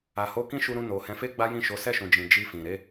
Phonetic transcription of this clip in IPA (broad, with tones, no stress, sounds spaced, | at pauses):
a˨ h o˧ k ĩ˦ ʃ u˧ ɾ ũ˧ n o˨ h ɛ̃˨˦ f e˦ ɡ͡b a˦ j ĩ˦˨ ʃ o˨˦ s ɛ˦˨ ʃ ũ˨ d͡ʒ ĩ˨ d͡ʒ i˧ f ĩ˨ ɾ e˨˦